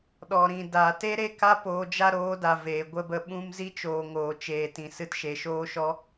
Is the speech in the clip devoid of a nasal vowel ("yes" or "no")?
no